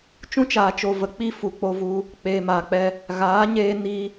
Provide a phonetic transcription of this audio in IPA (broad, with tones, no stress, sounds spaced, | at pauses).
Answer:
t͡ʃ ũ˦ t͡ʃ aː˨ t͡ʃ o˨ v ə˨ k͡p i˧ f u˨ k͡p o˧ v u˧ | k͡p eː˨ m aː˨ k͡p ɛ˧ | ɣ aː˨˦ ɲ eː˧ n i˧